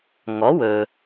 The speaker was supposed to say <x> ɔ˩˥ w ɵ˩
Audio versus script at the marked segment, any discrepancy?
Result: yes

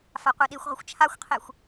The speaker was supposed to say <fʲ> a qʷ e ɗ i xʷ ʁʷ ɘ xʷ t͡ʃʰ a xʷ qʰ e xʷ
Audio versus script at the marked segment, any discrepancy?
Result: yes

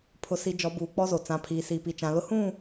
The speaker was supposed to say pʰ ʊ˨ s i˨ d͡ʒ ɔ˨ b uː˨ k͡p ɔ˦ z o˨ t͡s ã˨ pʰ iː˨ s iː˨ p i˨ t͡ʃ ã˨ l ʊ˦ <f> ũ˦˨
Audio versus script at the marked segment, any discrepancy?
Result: yes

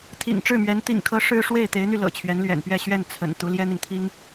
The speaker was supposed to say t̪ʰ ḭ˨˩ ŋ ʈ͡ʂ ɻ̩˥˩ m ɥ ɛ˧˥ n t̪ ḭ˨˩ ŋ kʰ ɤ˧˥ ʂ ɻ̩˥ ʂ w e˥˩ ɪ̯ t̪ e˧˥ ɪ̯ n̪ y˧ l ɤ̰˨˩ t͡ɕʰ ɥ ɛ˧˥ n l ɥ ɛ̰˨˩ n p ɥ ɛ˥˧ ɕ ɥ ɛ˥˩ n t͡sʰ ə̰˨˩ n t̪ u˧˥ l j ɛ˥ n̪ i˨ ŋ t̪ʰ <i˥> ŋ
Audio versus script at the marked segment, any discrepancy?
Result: no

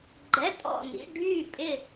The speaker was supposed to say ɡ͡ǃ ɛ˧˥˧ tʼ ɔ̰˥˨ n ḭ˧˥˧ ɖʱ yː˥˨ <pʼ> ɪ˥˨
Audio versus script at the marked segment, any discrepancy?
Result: no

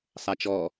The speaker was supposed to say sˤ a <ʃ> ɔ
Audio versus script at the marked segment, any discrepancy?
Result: yes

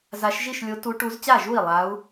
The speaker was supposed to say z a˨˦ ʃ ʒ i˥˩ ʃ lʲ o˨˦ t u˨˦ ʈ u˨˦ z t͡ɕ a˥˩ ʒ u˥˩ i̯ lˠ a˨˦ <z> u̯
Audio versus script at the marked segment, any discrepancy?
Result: yes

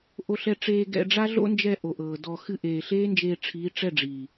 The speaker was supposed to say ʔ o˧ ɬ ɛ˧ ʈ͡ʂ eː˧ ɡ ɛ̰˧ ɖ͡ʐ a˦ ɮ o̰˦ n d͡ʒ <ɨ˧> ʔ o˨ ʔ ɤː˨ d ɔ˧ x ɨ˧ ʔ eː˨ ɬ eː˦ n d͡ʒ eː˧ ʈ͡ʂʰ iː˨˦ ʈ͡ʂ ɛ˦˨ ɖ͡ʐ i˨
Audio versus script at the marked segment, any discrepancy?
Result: yes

